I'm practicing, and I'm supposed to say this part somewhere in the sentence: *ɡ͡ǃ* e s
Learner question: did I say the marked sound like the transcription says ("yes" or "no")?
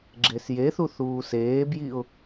no